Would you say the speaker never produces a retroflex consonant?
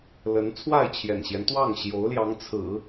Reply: yes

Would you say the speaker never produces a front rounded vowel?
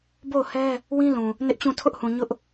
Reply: yes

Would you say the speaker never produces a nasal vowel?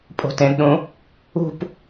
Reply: no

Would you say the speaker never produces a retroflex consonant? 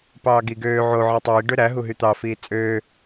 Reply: no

